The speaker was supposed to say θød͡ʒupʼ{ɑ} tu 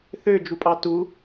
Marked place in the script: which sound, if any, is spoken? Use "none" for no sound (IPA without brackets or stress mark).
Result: ɑ